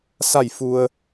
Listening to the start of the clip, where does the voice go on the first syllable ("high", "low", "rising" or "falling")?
falling